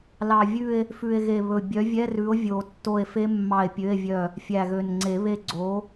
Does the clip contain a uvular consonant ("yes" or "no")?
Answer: no